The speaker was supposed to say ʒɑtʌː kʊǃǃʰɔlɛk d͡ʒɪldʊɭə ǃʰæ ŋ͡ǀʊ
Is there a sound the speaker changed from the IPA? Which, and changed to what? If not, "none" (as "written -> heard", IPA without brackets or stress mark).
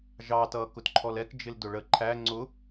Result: ǃ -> t